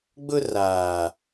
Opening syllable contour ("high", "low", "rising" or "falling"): high